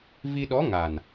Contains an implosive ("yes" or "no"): yes